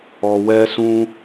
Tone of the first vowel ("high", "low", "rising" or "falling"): low